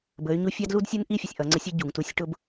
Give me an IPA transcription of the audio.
b ə˩˧ y̯ ɲ u˧ fʲ ɑ˥ d l u˥ d sʲ u˥ n ʔ i˥ fʲ ə˩ sʲ ʔ ʌ˩˧ ŋ͡ǀ ə˧˥ sʲ ə˧˥ ɟ u˩ ŋ t u˧˥ sʲ ʈ ʊ˥ b

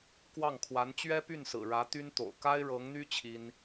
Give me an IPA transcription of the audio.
k w ɑ˥˩ ŋ kʰ w a˧˥ n t͡ɕ ɥ ɛ˥ p y˥˩ n s ɹ̩˨˩ ɻ ä˧˥ t̪ y˥ n t̪ o̰˨˩ ʊ̯ k a˥ ɪ̯ ɻ ɤ˧˥ ŋ n̪ y˥ t͡ɕʰ i˥ n

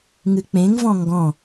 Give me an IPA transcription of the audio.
ŋ ɨ k͡p ẽ ŋ v ɔ̃ ŋ ɡ ɔ̃

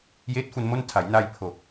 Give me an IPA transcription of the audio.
j eː˦˥ t̚ f u˧ n m o˥˩ n tʰ a˩˦ j n a˧ j pʰ o˨˩ k̚

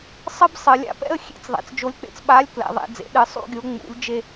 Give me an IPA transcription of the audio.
sˤ ɨ˥˧ b sˤ ɨ˩˧ lʲ a̰˨˥ p ɛ̰˥˧ ə̯ xʲ ḛ˨˥ t͡s ðˤ ɛ̰˩˧ t͡s d͡ʒ o˨˥ lʲ k͡p ḛ˩˧ t͡s ɓ a˨˥ lʲ k l ɛ̰˩˧ ðˤ ḛ˩˧ d͡z ḛ˩˧ ɗ ɨ˩˧ sˤ ṵ˥˧ ɡʲ o˨˥ ŋ͡m ṵ˨˥ lʲ d͡ʒ e˥˧

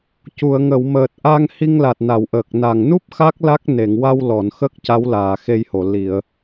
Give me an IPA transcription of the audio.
c u˨˩˨ ə̯ ŋ ə˨˩˨ w m əː˨˩ t̚ ʔ a˧ ŋ h i˧ ŋ l a˨˩ t̚ n a˨˩˨ w ʔ əː˨˩ k̚ n a˨˩ ŋ n u˦˥ p̚ x a˦˥ k̚ l a˦˥ k̚ n e˨˩˨ ŋ w a˧ w l ɔ˨˩˨ n x ə˦˥ k̚ c a˧˥ w l aː˨˩˨ x e˧ j h o˨˩˨ l i˨˩˨ ə̯

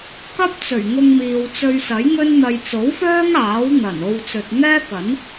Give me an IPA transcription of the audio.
k ɐ˥ p̚ t͡s ɵ˨˩ ɥ ŋ ʊ˧ ŋ m iː˨ w t͡s ɵ˧ ɥ s ɐ˨˥ j ŋ ɵ˥ n n̪ ɐ˧ j t͡s o˨˥ w f œː˥ ŋ aː˨˥ w n̪ ɐ˨˩ n o˧ w t͡s ɵ˨ t̚ ŋ ɛː˥ k ɐ˨˥ n

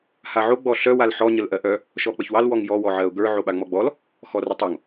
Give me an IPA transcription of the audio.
h a ʕ o ɡ͡b ɔ ɬ œ w a l ħ ɔ ɲ ə l ʔ ɜ ʔ œ | ʃ ɔ k͡p ə ç w ɑ l w ɔ ŋ j ɔ w ɔ ʕ ɜ ʊ̯ ɡ ə˞ ʕ o ɓ a ŋ͡m ɔ ɡ͡b ɔ l | x ɔ r ə tˤ o ŋ

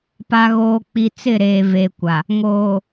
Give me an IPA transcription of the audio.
p a˨ ɣ oː˨ k͡p i˨ t͡s ɪ˦˨ ɾ eː˨ v eː˨ kʷ a˨ | ŋ oː˨

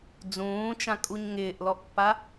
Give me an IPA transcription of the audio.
d͡z ũː t͡ʃ ã kʼ u ɲ ŋ ɪː ʔ l ɔ ʔ pː a

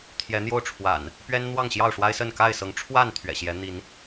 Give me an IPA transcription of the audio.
t̪ʰ j ɛ˨˦ n̪ j o˥˨ ʊ̯ ʈ͡ʂʰ w a̰˨˩ n | p ɥ ɛ˦ n n̪ w ɑ˥˨ ŋ ɕ j ɑ˥˨ ʊ̯ ʂ w a˦ ɪ̯ s ə˥˨ n k a˥˨ ɪ̯ s ɤ˨˦ ŋ ʈ͡ʂʰ w a˥˨ n t̪ʰ ɥ ɛ̰˨˩ ɕ j ɛ˨˦ n̪ i˨˦ n

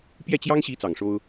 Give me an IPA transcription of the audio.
p j ɛ˥˩ t͡ɕ j ɑ˥ ŋ ɕ i˧˥ t͡s ɑ˨˩ ŋ ʂ o˥ ʊ̯

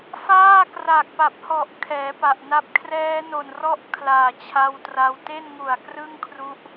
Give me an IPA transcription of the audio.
f aː˥˩ k r a˨˩ k̚ p a˨˩ p̚ h ɔ˨˩ ʔ kʰ ɛː˩˦ p a˨˩ ʔ n a˦˥ p̚ kʰ r ɛː˦˥ n o˨˩ n r ɔ˦˥ ʔ kʰ l aː˨˩ t͡ɕʰ a˧ w t r a˧ w t e˥˩ n ŋ u˨˩ a̯ k r ɯ˥˩ ŋ kʰ r u˦˥ ʔ

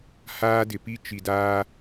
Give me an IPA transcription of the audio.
h aː˦ d ɪ˨ p i˦ t͡ʃ i˨ d aː˦

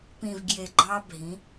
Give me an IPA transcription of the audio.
p ĩ˨ v ɡ j e˨ ɡ͡ǃ ɑ˦ bʱ ĩ˨˦

